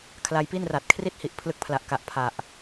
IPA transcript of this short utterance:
kʰ l a˧ j p i˥˩ n r a˨˩ t̚ kʰ r i˦˥ t̚ h i˨˩ ʔ pʰ l ɯ˦˥ k̚ pʰ l a˨˩ ʔ k a˨˩ ʔ pʰ a˨˩ ʔ

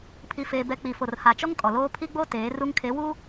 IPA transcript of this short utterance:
pʰ i˦ f eː˦ b ɛ˦ k͡p i˨ f o˨ r h a˨ t͡ʃ ɔ˦ ŋ kʼ ɔ˨ l oː˦ pʰ i˦ ɡ͡b o˦ t eː˨˦ r u˦ ŋ kʰ e˨˦ w u˦

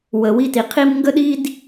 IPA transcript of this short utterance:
w ə˨ w i˦˨ t i˨ qʰ i˦ m ŋ ɡ ə˦ ɗ i˦ d

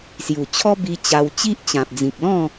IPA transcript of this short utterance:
s j u˨˩ t͡ɕʰ ɔ˦ b i˧ t͡ɕ a˧ w t͡ɕ i˦ ʔ t͡ɕ ã˨ p̚ d͡z ĩ˨ k̚ l ɔ̃˥˧

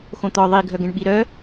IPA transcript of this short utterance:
x õ t̪ ɔ ðˤ i ɡʱ œ ɡ ɛ̃ ɳ ɓ i ɾ œ

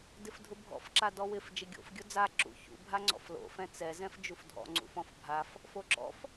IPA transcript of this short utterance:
d ɪ f dʱ ʊ bʱ ɔ̰ f ǁ a d ɔ w ɪ f d͡ʒ ɪ ɡʲ o̰ f ɡʲ ʊ d͡z a ǁ ṵ ç ṵ bʱ a ŋ͡ǀ ɔ̰ f l o̰ f ɛ̃ t͡s ɛ z ɛ̃ f d͡ʒ u f dʱ ɔ̰ ŋ͡ǀ ṵ f ɔ̃ f bʱ a f | f o ǁ ɔ̰ f

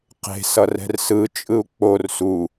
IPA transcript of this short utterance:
q e̤ s ʌ r ɛ̤ r s ɯ t͡ʃʼ ɯ u̯ k͡p o r s u

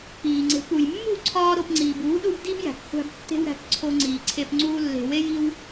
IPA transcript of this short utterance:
k͡p iː˨ ŋ͡ǀ e̤˨˦ k u˨ j mː ṳ˦˨ ǀʰ ɒː˦ ɾ o˧ p ŋ͡ǀ iː˨ b uː˨˦ ɗ u˧ b d i˦ b j æ̤˨ k χʷ æ̤˧ b tː e̤˦ w ɾ æ̤˧ k ǀʰ o˧ ŋ͡ǀ iː˨ ǀʰ e˧ p ŋ͡ǀ uː˦ lː e̤˧ w e˦ j i˦ w

